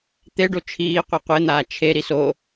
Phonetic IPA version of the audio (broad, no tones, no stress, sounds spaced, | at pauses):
t̪ e ɖ o t͡ʃʰ iː qʷ ɤ qʷ e n̪ aː t͡ʃʰ e ɾ i s o